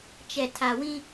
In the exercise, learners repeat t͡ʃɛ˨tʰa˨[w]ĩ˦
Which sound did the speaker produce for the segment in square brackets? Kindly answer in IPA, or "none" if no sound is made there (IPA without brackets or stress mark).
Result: w